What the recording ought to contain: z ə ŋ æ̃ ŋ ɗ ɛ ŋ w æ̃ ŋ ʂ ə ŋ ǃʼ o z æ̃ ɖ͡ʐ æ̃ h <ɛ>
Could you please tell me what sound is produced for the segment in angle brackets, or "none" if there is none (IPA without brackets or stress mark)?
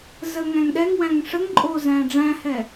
ɛ